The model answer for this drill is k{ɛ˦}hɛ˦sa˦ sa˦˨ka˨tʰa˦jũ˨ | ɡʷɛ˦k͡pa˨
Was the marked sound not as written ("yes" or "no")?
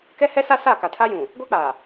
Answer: no